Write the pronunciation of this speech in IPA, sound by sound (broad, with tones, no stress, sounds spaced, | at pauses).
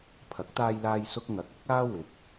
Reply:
pʰ ɐ˨˥ k̚ t̪ aː˧ j l aː˧ j s ʊ˥ k̚ ŋ ɐ˨˥ k̚ ɐ˥ k̚ aː˥ w ɪ˨ k̚